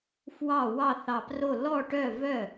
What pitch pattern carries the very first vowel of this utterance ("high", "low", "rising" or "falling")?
falling